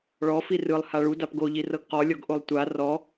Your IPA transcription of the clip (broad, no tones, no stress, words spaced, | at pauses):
ɭɔ firɯlˠ haɭu dapɡoʎi rɤɡqɔlʲɔɡ ʔolˠtʷa rɔ